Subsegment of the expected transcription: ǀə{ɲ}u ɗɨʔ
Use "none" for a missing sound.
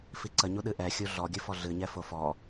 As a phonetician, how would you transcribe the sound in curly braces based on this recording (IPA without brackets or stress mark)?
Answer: ɲ